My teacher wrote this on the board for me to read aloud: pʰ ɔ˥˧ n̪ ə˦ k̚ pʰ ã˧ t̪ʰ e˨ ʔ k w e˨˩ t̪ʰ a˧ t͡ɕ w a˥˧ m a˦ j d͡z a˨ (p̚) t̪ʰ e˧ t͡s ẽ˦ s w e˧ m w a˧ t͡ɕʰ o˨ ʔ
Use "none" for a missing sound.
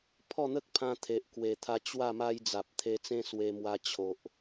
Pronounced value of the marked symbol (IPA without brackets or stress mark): p̚